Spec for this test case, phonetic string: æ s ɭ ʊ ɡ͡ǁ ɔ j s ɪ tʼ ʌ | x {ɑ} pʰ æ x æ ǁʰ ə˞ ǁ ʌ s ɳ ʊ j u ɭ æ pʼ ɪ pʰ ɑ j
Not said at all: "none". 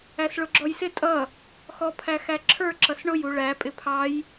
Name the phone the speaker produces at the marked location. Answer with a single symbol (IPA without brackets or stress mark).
ɔ